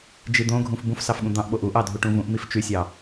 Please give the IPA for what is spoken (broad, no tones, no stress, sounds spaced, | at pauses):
d͡ʒ i d̪ õ ɡʱ ũ f b ũ f s ɑ f ɠ ũ d̪ ɑ̃ ʔ ɓ o ʔ u ʔ ɑ dʱ u ʈ ũ v ũ ʔ m i f t͡ʃ y sʲ ɑ